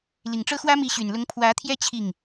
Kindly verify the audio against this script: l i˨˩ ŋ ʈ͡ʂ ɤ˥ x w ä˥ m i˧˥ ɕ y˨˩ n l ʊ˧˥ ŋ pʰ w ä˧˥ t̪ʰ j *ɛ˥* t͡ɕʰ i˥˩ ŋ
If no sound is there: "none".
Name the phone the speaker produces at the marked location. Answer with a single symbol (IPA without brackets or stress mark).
ɛ˥